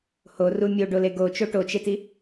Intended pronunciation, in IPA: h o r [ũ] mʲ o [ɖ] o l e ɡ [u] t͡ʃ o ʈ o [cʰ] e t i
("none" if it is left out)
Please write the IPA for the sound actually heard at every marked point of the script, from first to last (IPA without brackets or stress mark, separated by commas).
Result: u, ɖ, o, t͡ʃ